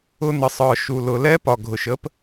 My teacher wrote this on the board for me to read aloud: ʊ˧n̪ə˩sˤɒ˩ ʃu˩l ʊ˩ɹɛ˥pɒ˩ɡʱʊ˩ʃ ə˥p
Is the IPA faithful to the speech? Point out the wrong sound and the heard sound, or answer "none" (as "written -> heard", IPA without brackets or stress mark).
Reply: ɹ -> l